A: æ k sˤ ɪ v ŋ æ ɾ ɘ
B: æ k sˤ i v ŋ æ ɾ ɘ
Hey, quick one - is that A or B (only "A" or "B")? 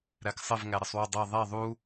A